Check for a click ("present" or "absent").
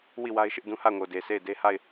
absent